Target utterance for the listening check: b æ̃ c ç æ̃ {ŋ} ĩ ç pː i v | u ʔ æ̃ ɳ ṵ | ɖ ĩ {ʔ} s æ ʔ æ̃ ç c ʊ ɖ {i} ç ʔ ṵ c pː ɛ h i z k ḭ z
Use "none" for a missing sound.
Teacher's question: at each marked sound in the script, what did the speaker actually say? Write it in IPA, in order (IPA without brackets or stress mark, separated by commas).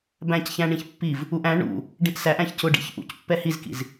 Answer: ɳ, ʔ, ḭ